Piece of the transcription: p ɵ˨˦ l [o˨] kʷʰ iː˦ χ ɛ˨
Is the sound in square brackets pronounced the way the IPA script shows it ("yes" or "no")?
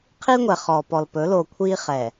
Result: yes